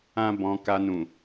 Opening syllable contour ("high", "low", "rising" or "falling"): high